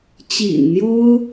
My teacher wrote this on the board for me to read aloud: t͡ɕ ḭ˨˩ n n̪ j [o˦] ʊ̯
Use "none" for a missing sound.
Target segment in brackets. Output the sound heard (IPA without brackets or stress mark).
o˦